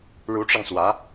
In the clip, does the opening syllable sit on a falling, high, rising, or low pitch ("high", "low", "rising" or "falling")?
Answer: rising